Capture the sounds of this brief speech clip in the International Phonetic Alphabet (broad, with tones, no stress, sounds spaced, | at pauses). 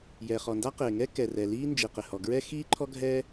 j ɛ˩ χ ɔ˩ n d a˥ q ɪː˩ ŋ ɛ˥ k ɛ˩ r ɛ˩ l iː˥ n d͡ʒ i˩ q ɪ˩ h ɔ˩ ɡ ɹ ɛ˥ x iː˥ ǃʰ ɔ˥ ɡʱ ɛ˥